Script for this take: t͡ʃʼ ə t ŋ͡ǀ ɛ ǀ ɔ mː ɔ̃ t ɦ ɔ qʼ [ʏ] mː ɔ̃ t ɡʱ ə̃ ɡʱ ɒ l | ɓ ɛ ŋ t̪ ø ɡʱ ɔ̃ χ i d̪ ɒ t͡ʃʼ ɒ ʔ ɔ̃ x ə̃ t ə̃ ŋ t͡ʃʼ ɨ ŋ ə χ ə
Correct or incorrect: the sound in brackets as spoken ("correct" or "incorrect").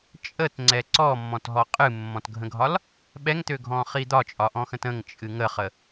incorrect